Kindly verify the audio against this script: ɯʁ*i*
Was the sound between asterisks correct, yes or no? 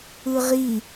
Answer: yes